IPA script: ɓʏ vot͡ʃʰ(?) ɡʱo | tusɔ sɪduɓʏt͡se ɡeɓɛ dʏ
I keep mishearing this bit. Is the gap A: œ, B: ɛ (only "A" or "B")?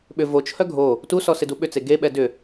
A